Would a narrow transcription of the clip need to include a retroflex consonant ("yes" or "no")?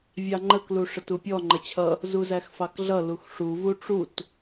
yes